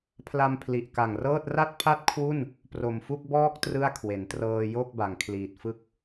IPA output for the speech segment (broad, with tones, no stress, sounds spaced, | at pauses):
pʰ l a˧ m pʰ l i˨˩ ʔ k a˨˩ ŋ r ɤː˥˩ t̚ r a˥˩ t̚ pʰ a˥˩ t̚ kʰ w u˥˩ n | p r o˨˩ m f u˥˩ k̚ b ɔː˥˩ k̚ t r ɯ˥˩ a̯ kʰ w e˩˦ n t r ɤː˧ j o˥˩ k̚ b a˩˦ ŋ kʰ l iː˨˩ t̚ f ɯ˥˩ k̚